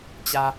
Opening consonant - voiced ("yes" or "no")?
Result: no